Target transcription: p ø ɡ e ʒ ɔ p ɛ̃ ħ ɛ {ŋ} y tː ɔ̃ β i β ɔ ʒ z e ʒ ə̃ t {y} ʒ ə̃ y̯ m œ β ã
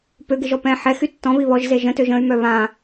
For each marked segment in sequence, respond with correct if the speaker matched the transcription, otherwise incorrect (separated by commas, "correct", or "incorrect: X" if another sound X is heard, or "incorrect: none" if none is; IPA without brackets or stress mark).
incorrect: x, incorrect: ø